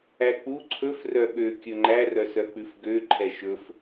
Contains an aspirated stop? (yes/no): yes